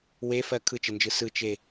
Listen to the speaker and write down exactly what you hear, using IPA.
w e f ɜ kʰ ɯ t͡ʃ ɘ n d͡ʒ ɯ s ɯ t͡ʃ e

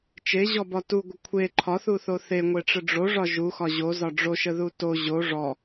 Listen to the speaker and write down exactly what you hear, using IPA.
t͡ʃ e ʑ ɔ b ɒ t u ɡʷ ə kʷʰ e ǃʰ ɒ θ u θ o θ e ŋʷ e ʈ͡ʂ ə ɖ͡ʐ o ʐ ɒ ʒ u x ɒ ʑ o z ɒ ɖ͡ʐ o ʃ ə ð u t o ʑ o ʐ ɔ

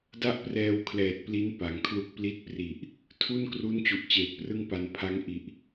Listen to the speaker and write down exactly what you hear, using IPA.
d a˥˩ ʔ p r ɛː˧ w kʰ l ɛː˨˩ t̚ p l i˦˥ n p a˩˦ ŋ kʰ l u˥˩ k̚ p l i˦˥ t̚ p r i˨˩ ʔ | tʰ u˥˩ n k r u˦˥ n t͡ɕ u˨˩ ʔ t͡ɕ eː˨˩ t̚ p r ɯ˥˩ ŋ p a˧ n pʰ a˦˥ ŋ ʔ i˨˩ ʔ

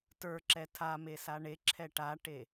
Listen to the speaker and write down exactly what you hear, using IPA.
t ə˞ ǁ ɛ tʰ a m e s a ɳ e ǁʰ ɛ ʈ a ʈ e

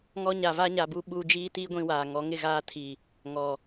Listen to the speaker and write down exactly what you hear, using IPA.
ŋ ɔ˦ ɲ a˨ v a˦ ɲ a˨ b u˦ ɓ u˦ d͡ʒ iː˦ t iː˦ ɡʷ ĩ˦ w aː˨ ŋ ɔ˨˦ ŋ ɪ˦˨ ɣ aː˦ tʰ i˨ | ŋ ɔ˨

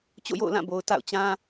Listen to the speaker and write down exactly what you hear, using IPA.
t͡ɕ o̰˦˨ j o̰˦˨ ʊ̯ l ã˦˨ b o˨ ʊ̯ t a̰˦˨ ʊ̯ t͡ɕ ã˦

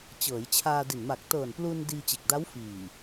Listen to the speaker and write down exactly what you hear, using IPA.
t͡ɕ ɤː˩˦ j t͡ɕʰ aː˧ d i˨˩ n m a˨˩ k̚ t ɤː˨˩ n p l u˧ n d iː˧ t͡ɕ e˨˩ k̚ d a˦˥ w f iː˨˩

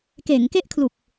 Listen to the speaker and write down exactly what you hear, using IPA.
k eː˩˦ ŋ k e˥˩ ʔ kʰ l u˨˩ k̚

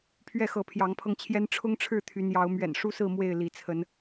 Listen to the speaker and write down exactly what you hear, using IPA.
pʰ ɥ ɛ˥˨ x ɤ˨˦ pʰ j ɑ˨˦ ŋ pʰ ɤ˧ ŋ t͡ɕʰ j ɛ˦ n ʈ͡ʂʰ ʊ˦ ŋ ʈ͡ʂʰ ɻ̩˥˨ t̪ʰ y˨˦ n j ɑ˨˦ ʊ̯ m ɥ ɛ̰˨˩ n ʂ u˦ s ɹ̩˥˨ m w e˥˨ ɪ̯ l i˨˦ t͡sʰ ə˨˦ n

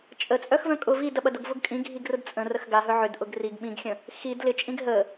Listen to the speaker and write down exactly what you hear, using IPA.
t͡ʃʼ ə t͡sʼ œ x v œ̃ kʼ ʊ v i d ɐ ɓ ɐ d ʊ ɡ v ʊ ɡ kʼ ĩ ɡʱ i ɡ r ʊ d t͡sʼ ə̃ r ə x ɡ a ɦ œ ʕ ʏ d ʔ ʊ ɡ r i ɡ ɓ ĩ ɡ xʲ ə̃ | x i d l ɪ t͡ʃʼ ĩ ɡ ɦ ə

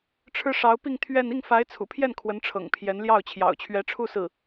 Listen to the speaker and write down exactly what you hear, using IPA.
ʈ͡ʂʰ ɻ̩˥ ʂ ɑ˧˥ ʊ̯ p i˥˧ ŋ t̪ʰ ɥ ɛ˥˧ n i˥˩ ŋ f a˧˥ ɪ̯ t͡sʰ ṵ˨˩ pʰ j ɛ˥˩ n kʰ w ə˧˥ n ʈ͡ʂʰ ɤ̰˨˩ ŋ pʰ j ɛ˧˥ n l j ɑ˥˩ ʊ̯ t͡ɕʰ j ɑ̰˨˩ ʊ̯ t͡ɕʰ ɥ ɛ˧˥ ʈ͡ʂʰ u˥˧ s ɹ̩˥˩

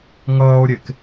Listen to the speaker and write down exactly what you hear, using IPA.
ŋ ʌː o̯ ɾʲ e k

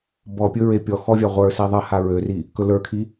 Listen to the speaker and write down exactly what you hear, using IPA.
b ɔ pʲ ɵ ɹ e pʲ ɔ x ɔ vʲ a ʁʷ ə˞ s i ðˤ ə h a ɹ ø r i | k ɵ l ə˞ kʰ i

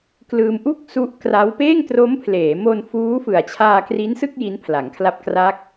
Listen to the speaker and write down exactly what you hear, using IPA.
k l ɯː˧ m ʔ u˥˩ k̚ s u˦˥ ʔ k r a˦˥ w p eː˥˩ ŋ t r o˦˥ m pʰ l eː˩˦ m o˧ n f uː˦˥ f ɯ˨˩ a̯ t͡ɕʰ aː˧ k r i˦˥ n s ɯ˥˩ k̚ j i˦˥ n pʰ l a˩˦ ŋ kʰ l a˦˥ p̚ k r a˦˥ k̚

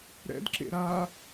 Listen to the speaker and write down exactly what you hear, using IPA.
ɾ ɛ̰ d ǁ ḛ ɾ a

